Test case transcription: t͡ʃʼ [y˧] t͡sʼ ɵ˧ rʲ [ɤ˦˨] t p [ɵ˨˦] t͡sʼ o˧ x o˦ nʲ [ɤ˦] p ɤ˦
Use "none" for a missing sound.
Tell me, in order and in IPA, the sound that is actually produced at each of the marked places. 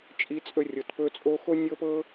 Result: i˧, ɤ˨, ɵ˧, ɤ˦

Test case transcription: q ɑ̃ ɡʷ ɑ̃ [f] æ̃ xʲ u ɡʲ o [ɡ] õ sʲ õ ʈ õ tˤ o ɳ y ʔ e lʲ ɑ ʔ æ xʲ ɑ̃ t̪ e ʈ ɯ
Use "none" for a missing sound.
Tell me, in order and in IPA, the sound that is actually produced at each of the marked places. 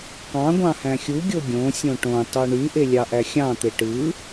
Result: h, ɡʲ

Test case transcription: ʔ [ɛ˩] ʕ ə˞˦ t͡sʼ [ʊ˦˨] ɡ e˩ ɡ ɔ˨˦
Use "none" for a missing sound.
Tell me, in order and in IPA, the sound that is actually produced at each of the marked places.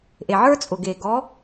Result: e˩, ʊ˩

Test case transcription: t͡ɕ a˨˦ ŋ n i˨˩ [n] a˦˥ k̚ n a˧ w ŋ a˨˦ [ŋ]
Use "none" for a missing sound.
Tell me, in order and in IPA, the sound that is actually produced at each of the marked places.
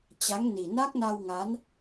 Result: n, n

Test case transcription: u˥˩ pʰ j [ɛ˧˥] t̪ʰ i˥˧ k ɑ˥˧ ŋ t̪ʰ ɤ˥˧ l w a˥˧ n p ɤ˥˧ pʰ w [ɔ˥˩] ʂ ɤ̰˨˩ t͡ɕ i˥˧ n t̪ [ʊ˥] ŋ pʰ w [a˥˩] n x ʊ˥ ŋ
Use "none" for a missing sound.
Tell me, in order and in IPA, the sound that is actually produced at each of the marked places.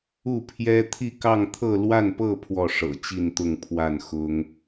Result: ɛ˥, ɔ˥˩, ʊ˥˧, a˥˩

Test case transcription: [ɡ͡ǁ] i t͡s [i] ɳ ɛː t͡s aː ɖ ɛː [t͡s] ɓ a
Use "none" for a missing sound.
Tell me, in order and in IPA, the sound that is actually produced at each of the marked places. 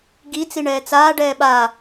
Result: ɡ, i, none

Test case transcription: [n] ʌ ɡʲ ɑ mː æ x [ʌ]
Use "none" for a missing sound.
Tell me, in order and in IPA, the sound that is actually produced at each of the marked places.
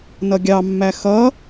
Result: n, ʌ

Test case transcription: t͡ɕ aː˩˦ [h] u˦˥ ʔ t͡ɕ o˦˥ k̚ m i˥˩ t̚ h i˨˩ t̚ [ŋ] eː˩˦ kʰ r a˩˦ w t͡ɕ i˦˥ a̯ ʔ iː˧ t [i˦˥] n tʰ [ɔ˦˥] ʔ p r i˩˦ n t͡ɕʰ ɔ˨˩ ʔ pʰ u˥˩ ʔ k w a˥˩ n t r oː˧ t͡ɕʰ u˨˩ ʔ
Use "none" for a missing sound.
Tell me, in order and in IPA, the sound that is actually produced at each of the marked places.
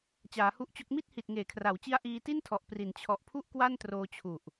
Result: h, ŋ, i˥˩, ɔ˨˩

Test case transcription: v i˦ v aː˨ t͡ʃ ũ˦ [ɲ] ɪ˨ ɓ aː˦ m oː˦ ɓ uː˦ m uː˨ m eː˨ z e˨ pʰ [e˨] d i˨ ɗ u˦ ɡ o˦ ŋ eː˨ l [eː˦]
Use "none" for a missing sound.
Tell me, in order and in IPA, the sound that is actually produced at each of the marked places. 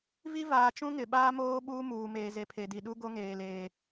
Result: ŋ, e˨, eː˨

